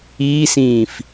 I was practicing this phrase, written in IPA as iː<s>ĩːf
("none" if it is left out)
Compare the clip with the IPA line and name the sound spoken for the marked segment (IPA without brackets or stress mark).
s